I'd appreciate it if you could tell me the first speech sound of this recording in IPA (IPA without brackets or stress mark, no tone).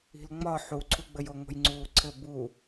i̤